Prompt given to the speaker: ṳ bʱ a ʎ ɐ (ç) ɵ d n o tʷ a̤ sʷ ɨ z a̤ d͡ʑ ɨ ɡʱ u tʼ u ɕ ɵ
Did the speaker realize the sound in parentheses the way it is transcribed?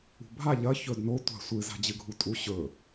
yes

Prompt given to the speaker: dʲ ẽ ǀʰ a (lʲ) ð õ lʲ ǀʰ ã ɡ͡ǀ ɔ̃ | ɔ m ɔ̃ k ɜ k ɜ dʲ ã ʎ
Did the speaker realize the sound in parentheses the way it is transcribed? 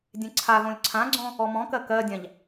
no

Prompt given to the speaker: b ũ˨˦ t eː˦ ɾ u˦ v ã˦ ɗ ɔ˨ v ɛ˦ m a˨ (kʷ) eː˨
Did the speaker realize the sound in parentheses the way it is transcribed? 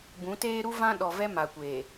yes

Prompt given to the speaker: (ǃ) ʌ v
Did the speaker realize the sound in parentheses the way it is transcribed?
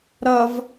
no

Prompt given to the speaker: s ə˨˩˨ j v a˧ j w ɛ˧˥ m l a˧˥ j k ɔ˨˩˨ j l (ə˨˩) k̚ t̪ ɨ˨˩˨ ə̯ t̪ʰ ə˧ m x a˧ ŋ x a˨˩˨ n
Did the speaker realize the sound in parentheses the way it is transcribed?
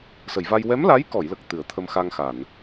yes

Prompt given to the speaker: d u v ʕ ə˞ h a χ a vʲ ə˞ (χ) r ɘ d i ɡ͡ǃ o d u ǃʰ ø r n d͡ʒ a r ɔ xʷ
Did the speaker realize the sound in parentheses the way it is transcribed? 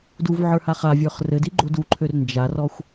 yes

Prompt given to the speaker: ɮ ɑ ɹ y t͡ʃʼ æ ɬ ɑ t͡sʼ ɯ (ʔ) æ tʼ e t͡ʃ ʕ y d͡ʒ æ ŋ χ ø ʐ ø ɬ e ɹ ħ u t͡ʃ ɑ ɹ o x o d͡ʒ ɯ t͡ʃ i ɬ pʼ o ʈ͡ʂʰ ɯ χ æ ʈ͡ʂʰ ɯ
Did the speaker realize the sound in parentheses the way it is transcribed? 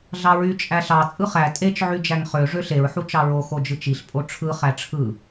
no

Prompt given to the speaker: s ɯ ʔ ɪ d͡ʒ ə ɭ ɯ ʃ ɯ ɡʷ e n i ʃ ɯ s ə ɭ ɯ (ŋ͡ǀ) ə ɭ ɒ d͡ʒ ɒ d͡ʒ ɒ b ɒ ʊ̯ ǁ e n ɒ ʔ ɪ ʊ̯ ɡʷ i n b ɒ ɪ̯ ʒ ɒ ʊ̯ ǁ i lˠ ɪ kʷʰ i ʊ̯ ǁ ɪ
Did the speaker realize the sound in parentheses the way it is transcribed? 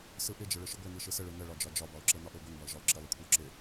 no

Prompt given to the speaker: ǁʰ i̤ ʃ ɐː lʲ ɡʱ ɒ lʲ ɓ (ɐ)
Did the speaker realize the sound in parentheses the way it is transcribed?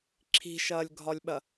yes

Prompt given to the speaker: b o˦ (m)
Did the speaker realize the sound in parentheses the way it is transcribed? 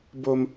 yes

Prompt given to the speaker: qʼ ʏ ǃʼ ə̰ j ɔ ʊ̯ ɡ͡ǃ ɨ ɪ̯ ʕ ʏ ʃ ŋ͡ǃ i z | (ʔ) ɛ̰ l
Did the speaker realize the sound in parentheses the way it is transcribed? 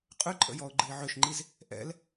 yes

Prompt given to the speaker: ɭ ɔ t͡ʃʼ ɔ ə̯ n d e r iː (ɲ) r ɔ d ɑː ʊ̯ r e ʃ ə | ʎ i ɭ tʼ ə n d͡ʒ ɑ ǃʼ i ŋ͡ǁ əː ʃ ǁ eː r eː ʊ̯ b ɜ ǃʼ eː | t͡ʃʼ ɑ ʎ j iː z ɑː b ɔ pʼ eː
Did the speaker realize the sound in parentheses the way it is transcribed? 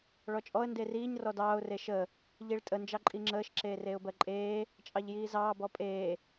yes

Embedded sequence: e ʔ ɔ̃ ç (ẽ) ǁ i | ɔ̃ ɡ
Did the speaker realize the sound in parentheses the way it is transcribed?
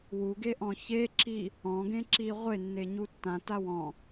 no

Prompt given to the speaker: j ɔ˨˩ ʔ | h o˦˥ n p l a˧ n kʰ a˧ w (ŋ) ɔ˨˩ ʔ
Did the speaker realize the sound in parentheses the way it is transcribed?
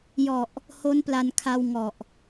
yes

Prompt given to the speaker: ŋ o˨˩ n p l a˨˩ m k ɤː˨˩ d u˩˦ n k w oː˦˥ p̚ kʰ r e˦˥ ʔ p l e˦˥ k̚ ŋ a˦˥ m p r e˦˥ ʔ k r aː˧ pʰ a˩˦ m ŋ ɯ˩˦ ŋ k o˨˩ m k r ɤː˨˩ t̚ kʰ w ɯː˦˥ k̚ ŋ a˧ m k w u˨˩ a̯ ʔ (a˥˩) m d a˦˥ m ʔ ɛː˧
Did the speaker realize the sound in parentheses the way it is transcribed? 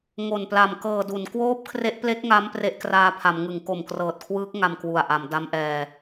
no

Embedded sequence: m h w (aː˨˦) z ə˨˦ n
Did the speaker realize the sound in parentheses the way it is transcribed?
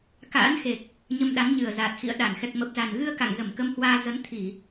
no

